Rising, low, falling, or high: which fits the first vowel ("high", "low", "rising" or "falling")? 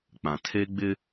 low